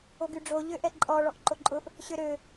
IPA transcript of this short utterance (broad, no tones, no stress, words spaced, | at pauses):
oɡyɖ͡ʐo ʎøʔɛǃʼɔ ɭɔʔǃoǃʼʊʔ | ɕøɾø